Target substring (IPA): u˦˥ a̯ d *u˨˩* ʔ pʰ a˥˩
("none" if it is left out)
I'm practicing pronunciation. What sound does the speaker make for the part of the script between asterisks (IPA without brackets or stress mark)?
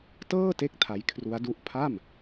u˦˥